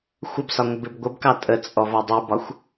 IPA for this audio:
xʷ ə b s ɒ ŋʷ ə b ɪ b ɡʷ ə b k ɑ tʼ ə t͡sʼ ɔ v ɒ dˤ u b ɒ xʷ

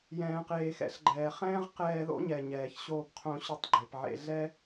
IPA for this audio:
j ɛ̃ː˩ q eː˩ x ɛ̰˥ ɬ ɡ͡ǃ ɛː˩ χ ɛ̃ː˥ ʁ q ɛː˧ ð o̰˥ ɲ ɛ˩ ɲ ɛː˩ ç ɕ oː˧ p qʰ õ˧ ɕ ø˧ tˤ ɡ͡ǃ e˩ p ʕ ḛ˧ ɮ ɛ˥

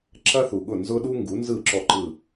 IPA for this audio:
ǁ ɐ˥ θ u˩ ɠ ʊ˥˩ n z ʊ˥ ɗ u˥ ŋ ɡ u˩˥ n z ɯ˥˩ ǁ ɔ˥˩ ǃ ɯ˥˩

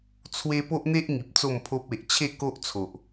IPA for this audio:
t͡sʰ w e˦ p o˦ ʔ n̪ e˦ ʔ ŋ i˨ p̚ t͡s o˥˧ m pʰ o˦ p̚ e˨ ʔ t͡ɕʰ e˥˧ k o˦ ʔ t͡sʰ o˨ ʔ

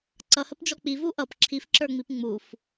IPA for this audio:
ǀ ʌ h ə p d͡ʒ ɔ k͡p i v u ʔ ʌ p ǁʰ i f ǁ ə˞ ŋ͡m i p ŋ͡m u f

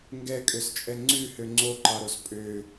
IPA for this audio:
ŋ ɡ ɛ kʼ ø s t͡ʃʼ ɛ ŋ͡ǀ ʉ h ø ŋ͡ǀ o ǃ ɑ ɾ o s pʼ ø

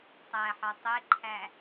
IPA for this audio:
tˤ æ ħ ɒ tˤ e ǃʰ æ

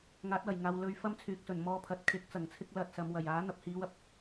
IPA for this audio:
ŋ aː˨˥ t̚ w ɐ˨˩ j ŋ aː˨ w l ɵ˨˧ ɥ f ɐ˥ m t͡sʰ yː˨ k̚ s ɵ˨˩ n m ɔː˧ pʰ ɐ˨˥ t̚ kʰ ɪ˨˥ k̚ t͡s ɐ˨˩ ŋ t͡sʰ ɪ˥ k̚ l ɐ˧ t̚ s ɐ˨˧ m w ɐ˨˩ j aː˨˥ n̪ ɐ˨ p̚ h iː˨˧ w ɐ˨ p̚

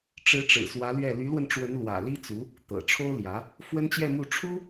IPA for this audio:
ʈ͡ʂ ɻ̩˧˥ ʈ͡ʂ ɻ̩˨˩ s w ä˧˥ l ɥ ɛ˥˩ l y˧˥ l w ə˧ n ʈ͡ʂ w ə˧˥ n l w ä̰˨˩ l i˥ t͡s u˧˥ | t̪ ɤ̰˨˩ ʈ͡ʂʰ o˥ ʊ̯ l j ä˧˥ | f w ə˥ n t͡ɕ j ɛ˥˧ m u˥˩ ʈ͡ʂʰ u˥

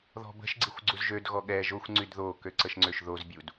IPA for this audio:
ð ɔ̤ b ə̤ ʃ ɡ͡ǀ i xʷ ɡ͡ǀ u z ʒ ø d ɣ ɔ ɠ ɛ ʒ o xʷ ŋ͡ǀ y d ð o k ø ǀ ə ʃ ŋ͡ǀ ø ʃ ð o z bʲ u d

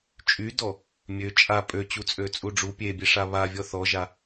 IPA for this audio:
t͡ʃʼ y d ɔ | mʲ ø t͡ʃʼ a pʼ ø t͡ɕ u t͡sʼ ø t͡sʼ u ɖ͡ʐ u pʲ e bʲ e ʂ a β a vʲ ɔ θ ɔ ʒ a

